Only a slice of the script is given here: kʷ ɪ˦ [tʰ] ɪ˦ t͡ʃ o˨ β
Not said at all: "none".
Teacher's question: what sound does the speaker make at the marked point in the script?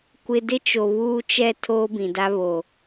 d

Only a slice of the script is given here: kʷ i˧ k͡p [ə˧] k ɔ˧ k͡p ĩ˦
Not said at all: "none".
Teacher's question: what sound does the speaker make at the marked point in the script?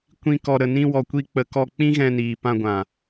ə˨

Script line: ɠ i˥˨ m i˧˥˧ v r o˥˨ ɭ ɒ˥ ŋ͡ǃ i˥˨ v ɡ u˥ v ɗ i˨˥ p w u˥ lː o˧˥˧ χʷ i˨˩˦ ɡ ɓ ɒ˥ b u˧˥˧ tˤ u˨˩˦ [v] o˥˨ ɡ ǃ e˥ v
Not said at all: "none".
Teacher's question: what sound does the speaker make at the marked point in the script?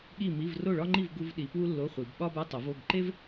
v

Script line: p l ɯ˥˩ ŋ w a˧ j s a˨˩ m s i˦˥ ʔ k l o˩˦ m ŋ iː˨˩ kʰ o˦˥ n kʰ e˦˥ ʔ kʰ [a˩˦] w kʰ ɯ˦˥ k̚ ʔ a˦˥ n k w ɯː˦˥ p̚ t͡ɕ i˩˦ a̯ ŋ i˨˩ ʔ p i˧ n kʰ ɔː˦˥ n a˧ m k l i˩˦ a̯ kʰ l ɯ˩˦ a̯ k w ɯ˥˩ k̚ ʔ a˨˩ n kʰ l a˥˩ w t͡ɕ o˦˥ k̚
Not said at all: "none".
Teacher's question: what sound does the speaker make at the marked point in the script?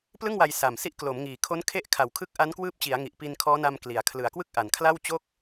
a˩˦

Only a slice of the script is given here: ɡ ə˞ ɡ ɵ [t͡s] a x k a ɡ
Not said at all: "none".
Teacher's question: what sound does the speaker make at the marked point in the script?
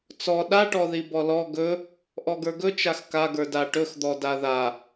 t͡ʃ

